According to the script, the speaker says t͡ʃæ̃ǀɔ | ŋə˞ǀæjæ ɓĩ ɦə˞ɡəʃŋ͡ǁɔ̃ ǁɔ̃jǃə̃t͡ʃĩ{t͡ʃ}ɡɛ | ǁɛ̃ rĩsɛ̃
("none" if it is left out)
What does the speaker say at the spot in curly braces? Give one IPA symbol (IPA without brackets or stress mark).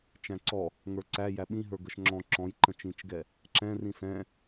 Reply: t͡ʃ